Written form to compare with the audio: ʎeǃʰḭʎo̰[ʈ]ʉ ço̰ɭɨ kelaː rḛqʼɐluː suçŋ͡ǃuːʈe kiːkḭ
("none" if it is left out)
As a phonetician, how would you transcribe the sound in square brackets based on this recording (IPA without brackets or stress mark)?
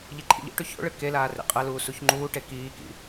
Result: ʈ